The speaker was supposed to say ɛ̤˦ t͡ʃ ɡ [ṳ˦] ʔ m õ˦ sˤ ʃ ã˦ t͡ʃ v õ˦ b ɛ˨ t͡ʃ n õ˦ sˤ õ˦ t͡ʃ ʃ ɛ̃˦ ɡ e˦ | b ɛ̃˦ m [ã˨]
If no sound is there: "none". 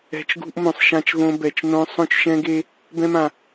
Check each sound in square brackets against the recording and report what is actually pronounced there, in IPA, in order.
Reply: ṳ˦, ã˨

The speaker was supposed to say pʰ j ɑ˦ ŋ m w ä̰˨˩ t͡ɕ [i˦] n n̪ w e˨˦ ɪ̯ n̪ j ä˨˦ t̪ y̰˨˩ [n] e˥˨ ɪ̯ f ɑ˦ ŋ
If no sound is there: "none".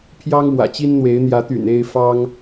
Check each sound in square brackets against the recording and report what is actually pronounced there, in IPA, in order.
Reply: i˦, n

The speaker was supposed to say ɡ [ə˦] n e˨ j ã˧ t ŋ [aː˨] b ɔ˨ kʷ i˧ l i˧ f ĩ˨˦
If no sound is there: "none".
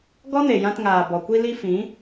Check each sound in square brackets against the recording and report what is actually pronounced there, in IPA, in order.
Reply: ɔ˦, aː˨

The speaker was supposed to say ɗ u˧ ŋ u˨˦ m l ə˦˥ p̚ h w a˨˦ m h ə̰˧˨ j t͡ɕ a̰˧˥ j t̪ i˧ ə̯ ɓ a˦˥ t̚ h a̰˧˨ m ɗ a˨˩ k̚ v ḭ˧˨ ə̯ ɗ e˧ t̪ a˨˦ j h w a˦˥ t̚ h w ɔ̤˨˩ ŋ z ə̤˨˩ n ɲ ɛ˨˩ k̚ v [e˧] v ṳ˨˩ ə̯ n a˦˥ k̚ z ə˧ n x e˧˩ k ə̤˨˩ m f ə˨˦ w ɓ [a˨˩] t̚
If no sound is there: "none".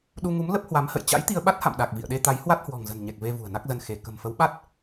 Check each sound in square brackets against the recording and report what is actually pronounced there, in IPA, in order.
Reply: e˧, a˦˥

